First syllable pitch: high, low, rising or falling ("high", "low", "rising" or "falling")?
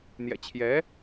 low